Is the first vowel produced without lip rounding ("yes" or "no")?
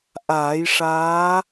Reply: yes